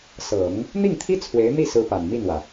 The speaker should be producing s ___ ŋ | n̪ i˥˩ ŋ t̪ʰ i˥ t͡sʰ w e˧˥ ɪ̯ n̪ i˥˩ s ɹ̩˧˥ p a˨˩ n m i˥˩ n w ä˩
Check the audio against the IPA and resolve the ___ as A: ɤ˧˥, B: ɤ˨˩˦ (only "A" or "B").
B